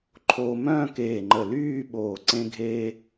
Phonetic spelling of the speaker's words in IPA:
ǃʰ oː˧ m œ̃ː˥˧ k eː˧˩ ŋ͡ǃ ə˧˩ l yː˥˧ ɓ oː˧˩ ǀ ẽ˧ ɡʱ eː˧

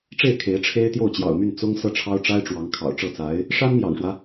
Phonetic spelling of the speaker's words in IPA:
ʈ͡ʂ e˥˩ ɪ̯ kʰ e˧˥ ɪ̯ ʈ͡ʂʰ e˥ ɪ̯ t̪ j o˥˩ ʊ̯ t͡ɕ j ɑ̰˨˩ ʊ̯ m y˥˩ n t͡s ʊ˥ ŋ s ɤ˥˩ ʈ͡ʂʰ ɑ˥ ʊ̯ ʈ͡ʂ a˥ ɪ̯ ʈ͡ʂ w ɑ˧˥ ŋ kʰ ɑ̰˨˩ ʊ̯ ʈ͡ʂ ɤ˥˩ t͡s a˧˥ ɪ̯ | ʂ a˥ n m j ɑ̰˨˩ ŋ ʂ w ä˦

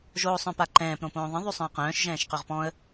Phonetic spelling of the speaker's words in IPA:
ʒ oː sˤ œ̃ p a ǃ ɛ̃ː p ɾ õ p õː ðˤ ə̃ ðˤ y sˤ œ̃ ə̯ q œ̃ː ʃ ʒ ɛ̃ː ʃ q ø ʁ p ɔ̃ ə̯

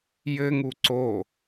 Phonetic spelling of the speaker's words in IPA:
j ɘ ŋ u ǀ o

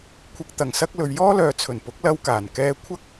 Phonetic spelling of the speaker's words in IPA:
kʷʰ ɪ˨ k̚ t̪ ɐ˨˩ ŋ s ɐ˧ k̚ l ɵ˨ ɥ j ɔː˥ l œː˨ t͡sʰ ɵ˨˩ n p ʊ˨˥ k̚ l ɐ˧ w k aː˨˩ n k ɛː˧ kʷʰ ɐ˥ k̚

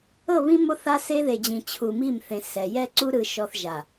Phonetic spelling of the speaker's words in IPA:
ɤ˦˨ β ĩ˦ m o˦ θ a˦ s e˦ ð e˨ d͡ʑ ĩ˨ t͡ɕʰ u˨ m i˦˨ m θ ẽ˨ s ɛ˨ j ɛ˦ ǀ u˦ ɾ ɯ˨ ʃ ɔ˨ θ ʒ a˨

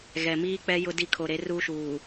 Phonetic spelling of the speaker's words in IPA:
ɣ ɛ˨ m iː˦ k͡p ɛ˦ j ʊ˦ d i˦ kʰ o˨ ɾ e˨˦ r uː˦ ʃ uː˨

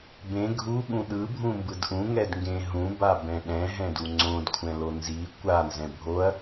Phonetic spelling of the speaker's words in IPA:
b ẽ ɡʱ u ɠ ũ ɗ ɯ bʱ ũ m b ɯ d ʔ ũ ŋ ɛ d ŋ ɡ ẽ ɦ ũ b a b ɛ̃ ɗ ɛ̃ ɦ ɛ̃ d u ŋ͡ǀ õ d kʷʰ ɛ̃ l o n z i kʷ a n z ɛ̃ bʱ o ɐ̯

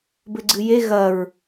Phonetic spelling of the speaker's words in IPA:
b ɘ ɡ͡ǀ ɨ j e ɣ ɐ ɹ

